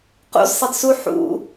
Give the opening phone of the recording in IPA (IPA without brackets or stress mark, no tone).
q